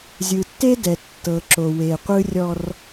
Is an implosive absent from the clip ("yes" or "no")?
yes